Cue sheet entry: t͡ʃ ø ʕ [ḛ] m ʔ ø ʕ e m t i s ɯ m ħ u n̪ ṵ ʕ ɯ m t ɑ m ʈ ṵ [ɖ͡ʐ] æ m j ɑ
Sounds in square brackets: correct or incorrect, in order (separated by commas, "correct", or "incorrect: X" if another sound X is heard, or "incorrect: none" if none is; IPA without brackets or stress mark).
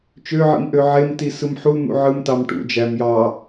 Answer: incorrect: ḭ, incorrect: d͡ʒ